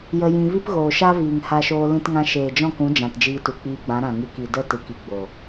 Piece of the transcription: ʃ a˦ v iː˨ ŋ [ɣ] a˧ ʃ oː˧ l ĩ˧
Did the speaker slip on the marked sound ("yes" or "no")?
yes